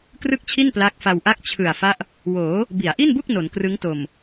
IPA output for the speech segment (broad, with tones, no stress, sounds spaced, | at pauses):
k r ɯ˥˩ k̚ t͡ɕʰ i˥˩ n p l a˦˥ k̚ f a˧ w ʔ a˥˩ k̚ t͡ɕʰ ɯ˨˩ a̯ f a˦˥ ʔ | w oː˩˦ | b i˩˦ a̯ ʔ i˥˩ n b u˥˩ k̚ n o˩˦ n k r ɯ˦˥ ŋ t o˨˩ m